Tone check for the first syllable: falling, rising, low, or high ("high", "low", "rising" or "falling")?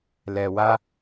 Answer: low